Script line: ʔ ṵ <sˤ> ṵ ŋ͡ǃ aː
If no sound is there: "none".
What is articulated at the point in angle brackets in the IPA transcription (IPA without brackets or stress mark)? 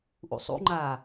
sˤ